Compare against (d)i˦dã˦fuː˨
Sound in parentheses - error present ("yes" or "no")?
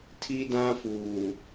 yes